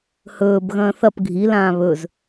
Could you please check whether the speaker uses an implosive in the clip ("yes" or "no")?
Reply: no